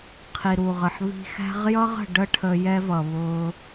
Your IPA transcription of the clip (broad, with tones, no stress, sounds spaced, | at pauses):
qʰ i˨ ɾ u˨ ʁ ə˨ ħ β i̤˧ x æ̤˦ ʁ j ʌ˦ ʁ ə̤˨ ɖ ə˦ ʈʰ ə˧ j ɛ˦ v ʌ˨ β ʊː˧